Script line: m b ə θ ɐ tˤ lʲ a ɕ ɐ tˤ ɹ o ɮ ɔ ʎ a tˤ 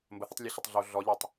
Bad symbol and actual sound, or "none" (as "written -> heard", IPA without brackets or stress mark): ɹ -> ɮ